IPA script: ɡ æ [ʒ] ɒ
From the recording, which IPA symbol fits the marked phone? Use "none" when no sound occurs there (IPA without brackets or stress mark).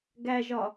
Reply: ʒ